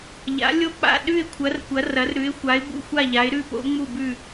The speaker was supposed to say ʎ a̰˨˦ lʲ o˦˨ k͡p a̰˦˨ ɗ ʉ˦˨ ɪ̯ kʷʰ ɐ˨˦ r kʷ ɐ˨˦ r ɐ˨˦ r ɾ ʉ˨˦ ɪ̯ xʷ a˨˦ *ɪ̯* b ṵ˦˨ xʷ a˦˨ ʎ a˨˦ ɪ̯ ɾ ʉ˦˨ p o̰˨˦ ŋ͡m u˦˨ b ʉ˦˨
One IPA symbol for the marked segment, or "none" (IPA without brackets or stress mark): ɪ̯